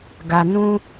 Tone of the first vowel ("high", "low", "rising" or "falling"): low